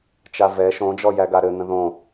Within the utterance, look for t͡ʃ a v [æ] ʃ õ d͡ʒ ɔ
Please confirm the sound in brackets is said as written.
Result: no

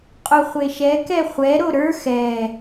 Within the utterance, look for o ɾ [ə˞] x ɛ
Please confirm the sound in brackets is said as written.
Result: yes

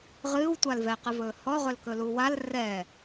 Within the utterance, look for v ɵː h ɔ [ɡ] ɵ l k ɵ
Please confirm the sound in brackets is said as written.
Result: no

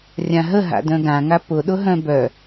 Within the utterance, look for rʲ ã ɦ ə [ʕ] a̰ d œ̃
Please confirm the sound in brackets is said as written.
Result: no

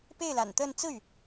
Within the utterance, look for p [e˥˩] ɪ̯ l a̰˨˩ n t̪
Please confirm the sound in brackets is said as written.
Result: yes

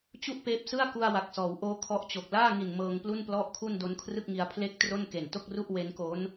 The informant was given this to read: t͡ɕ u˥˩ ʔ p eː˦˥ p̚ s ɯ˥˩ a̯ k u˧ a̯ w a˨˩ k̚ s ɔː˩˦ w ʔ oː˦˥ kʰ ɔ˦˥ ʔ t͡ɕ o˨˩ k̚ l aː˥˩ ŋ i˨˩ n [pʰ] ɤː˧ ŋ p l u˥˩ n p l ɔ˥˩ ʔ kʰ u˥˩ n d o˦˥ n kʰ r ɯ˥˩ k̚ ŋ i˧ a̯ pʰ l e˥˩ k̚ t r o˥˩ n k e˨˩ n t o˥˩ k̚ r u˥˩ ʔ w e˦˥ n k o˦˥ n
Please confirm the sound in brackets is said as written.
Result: no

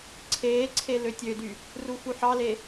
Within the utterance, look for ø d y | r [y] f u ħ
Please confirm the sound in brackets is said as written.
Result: no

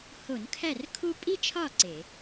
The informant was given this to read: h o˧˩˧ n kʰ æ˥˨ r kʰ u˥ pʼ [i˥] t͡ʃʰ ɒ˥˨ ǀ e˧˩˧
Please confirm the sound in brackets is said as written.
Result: yes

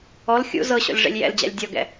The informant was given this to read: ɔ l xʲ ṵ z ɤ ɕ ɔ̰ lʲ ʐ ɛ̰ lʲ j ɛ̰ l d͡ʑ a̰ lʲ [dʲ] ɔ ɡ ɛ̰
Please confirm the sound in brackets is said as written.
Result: yes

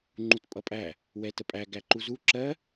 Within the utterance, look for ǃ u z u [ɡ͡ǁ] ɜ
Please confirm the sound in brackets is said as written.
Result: no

